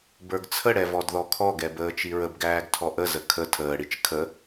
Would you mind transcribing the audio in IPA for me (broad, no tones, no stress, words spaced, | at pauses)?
bə˞ɡt͡sʰəɽɛ vɔdðɔkʰɔɡɛ bəːt͡ʃiɹəbɡæːɡ tʰɔʔəzə kʰə tʰəːɽit͡ʃ kʰə